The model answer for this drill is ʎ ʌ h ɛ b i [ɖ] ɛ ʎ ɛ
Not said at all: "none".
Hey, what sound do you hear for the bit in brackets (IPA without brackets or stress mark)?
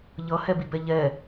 b